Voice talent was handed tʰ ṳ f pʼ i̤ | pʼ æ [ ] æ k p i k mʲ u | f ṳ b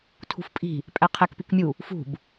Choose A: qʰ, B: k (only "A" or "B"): A